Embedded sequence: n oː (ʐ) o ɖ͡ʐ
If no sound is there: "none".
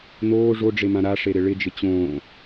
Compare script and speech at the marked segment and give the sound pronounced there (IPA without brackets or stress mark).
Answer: ʐ